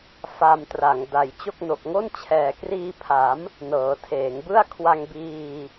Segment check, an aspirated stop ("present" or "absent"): present